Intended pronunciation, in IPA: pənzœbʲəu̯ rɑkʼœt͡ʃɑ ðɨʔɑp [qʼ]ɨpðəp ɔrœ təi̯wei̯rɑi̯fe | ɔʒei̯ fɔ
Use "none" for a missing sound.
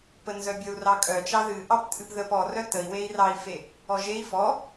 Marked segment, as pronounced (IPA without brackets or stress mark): tʼ